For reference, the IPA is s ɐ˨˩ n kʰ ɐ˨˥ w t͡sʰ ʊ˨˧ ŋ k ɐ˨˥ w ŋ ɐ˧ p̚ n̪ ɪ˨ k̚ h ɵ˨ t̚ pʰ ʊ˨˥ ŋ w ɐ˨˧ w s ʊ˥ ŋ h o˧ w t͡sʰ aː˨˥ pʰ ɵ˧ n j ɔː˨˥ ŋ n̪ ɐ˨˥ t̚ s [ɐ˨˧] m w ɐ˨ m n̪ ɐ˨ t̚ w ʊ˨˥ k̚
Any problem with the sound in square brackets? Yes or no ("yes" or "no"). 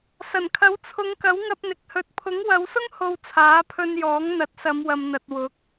no